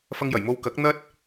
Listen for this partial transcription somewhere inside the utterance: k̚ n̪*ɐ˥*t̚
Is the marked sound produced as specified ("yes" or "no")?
yes